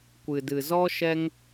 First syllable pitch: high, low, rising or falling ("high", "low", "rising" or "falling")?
low